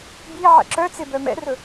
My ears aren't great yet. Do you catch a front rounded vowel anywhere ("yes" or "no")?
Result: yes